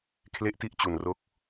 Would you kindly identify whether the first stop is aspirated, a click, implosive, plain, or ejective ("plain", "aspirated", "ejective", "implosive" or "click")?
aspirated